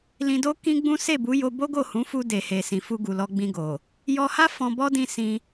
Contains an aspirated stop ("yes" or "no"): no